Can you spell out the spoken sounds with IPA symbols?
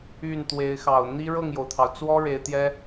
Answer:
y˥˩ n t̪ w e˧˥ ɪ̯ x ɑ˨˩ ʊ̯ n̪ i˥ ɻ ɤ˥˩ ŋ j o˩ ʊ̯ t̪ʰ ɑ˩ ʊ̯ t͡s w ɔ˥ ɻ e˧˥ ɪ̯ t̪ j ɛ˥

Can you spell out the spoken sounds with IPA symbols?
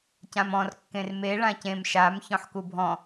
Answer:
c ã m ɔ̃ r kː ẽ r m e ɭ ã c ẽ m ʃ a m ç ɔ̃ ħ k u bʱ ɔ̃

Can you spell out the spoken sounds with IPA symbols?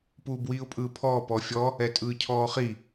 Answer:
p uː b w iː ʊ̯ pʼ ɯː pʰ ɔː p ɔ fʲ ɔ | ɛ tʼ ɯː cʰ ɔː χ i

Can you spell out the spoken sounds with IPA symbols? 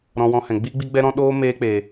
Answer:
ɾ ɔ̃˧ w ɔ̃˧ h ɛ̃˨ ɡ͡b iː˦ ɡ͡b i˦ ɡ͡b ɛ˦ ɾ ɔ̃˦ ɗ oː˦ m eː˦ k͡p e˨

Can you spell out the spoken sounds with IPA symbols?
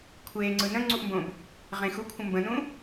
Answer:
kʷʰ eː ŋ͡ǀ ɯ n ə̃ ŋ͡ǀ u ʔ m b õ b | ʁ ẽ x u kʷʰ ə̃ m b ə̃ n ũ

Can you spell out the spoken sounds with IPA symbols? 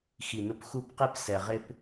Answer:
x i˨˩ n ʊ˧ p x u˥˩ p q i˥ p s ɛ˨˩ ʁ ɪ˥ p

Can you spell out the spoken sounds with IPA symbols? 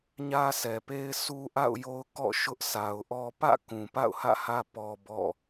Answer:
ɲ ä˦ sʰ ɛ˨ p e˦ ɪ̯ sʰ u˦ ʔ a̰˦˨ ʊ̯ j o˦ ʊ̯ k ɔ̰˦˨ ʃ ʊ˦ ʔ sʰ a˨ ʊ̯ ʔ ɔ˦ p ä̰˦˨ k ũ˨ p a̰˦˨ ʊ̯ h ä̰˦˨ h ä˦ p ɔ˦ b ɔ̰˦˨

